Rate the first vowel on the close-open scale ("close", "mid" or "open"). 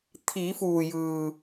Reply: close